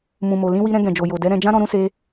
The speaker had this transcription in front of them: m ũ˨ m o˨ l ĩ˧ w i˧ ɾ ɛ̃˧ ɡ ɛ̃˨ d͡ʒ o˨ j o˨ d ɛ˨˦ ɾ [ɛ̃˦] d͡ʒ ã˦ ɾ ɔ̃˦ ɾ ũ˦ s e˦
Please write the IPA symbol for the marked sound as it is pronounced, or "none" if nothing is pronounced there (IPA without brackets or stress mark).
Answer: ɛ̃˧